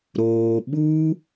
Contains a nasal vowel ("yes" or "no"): no